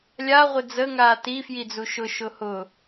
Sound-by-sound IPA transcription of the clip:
lʲa ʁʷɪd͡zə ŋaːti fjid͡zuʃʊ ʃʊhʊ

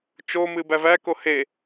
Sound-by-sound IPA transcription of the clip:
t͡ʃomɨ bævæko he

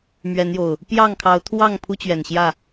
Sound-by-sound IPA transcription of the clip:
mɥɛ˨˦njo˨˩ʊ̯ | pjɑ˥˨ŋkʰɑ˨˦ʊ̯t̪ʰwɑ˥˨ŋ pʰu˦t͡ɕɥɛ˨˩nɕjä˥˨

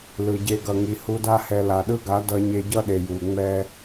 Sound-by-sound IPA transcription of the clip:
lɯ˨ɟe˧ ɡʌ˨ŋi˨ hu˧da˦hɛ˧ la˨ɗɯ˦ɡa˨˦ dʌ˧ ɲe˧ɟʌ˦ɗe˨ ju˨ŋ͡mɛ˦

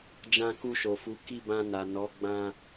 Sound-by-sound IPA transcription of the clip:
d͡ʒã˧ku˧ʃo˨fu˨˦ ki˦˨bã˧na˨nɔ˨˦ ɡ͡bã˧

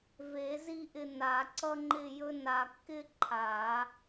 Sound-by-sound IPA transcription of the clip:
ve˨˩˦zi˥˧ʔɪ˧ na˨˩˦ǀʌ˥ŋ͡ǃɪ˥˧jɵ˥ na˧kːɪ˥ǃʰa˨˩˦

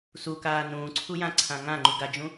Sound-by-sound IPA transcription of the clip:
sukaː nũːǀʰujãǀʰã ŋãŋ͡ǃu ɡad͡ʒũ

